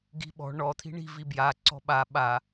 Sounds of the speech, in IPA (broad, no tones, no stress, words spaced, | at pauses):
ɡi̤ɓɔ̤ ɳɔ t̪ʰi̤ɳi̤ vibja ǀɔ̤ɓa ɓa